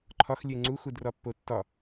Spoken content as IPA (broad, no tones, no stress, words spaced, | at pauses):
ǃʰɒxlʲe ŋ͡ǀuxudrɒ pːotːɒ